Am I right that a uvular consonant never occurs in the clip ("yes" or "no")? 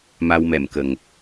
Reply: yes